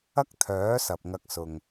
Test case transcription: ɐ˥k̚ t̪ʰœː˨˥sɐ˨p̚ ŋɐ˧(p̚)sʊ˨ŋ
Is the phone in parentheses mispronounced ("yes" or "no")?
yes